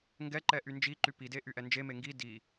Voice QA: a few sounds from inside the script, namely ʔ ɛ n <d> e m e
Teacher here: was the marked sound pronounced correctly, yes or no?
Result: no